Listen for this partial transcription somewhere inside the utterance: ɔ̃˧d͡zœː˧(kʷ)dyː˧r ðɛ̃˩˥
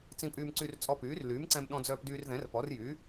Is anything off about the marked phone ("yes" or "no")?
yes